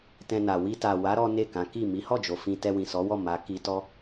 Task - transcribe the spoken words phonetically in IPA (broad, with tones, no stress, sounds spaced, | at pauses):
t ɛ̃˧ n a˨ w i˧ t a˨ w a˨˦ ɾ ɔ˦ n e˦˨ k ã˨˦ k i˦˨ m i˨˦ h ɔ˦˨ d͡ʒ o˨ f ĩ˧ t ɛ˧ w ĩ˨ s ɔ˨˦ w ɔ˦˨ m a˨˦ k i˧ t ɔ˦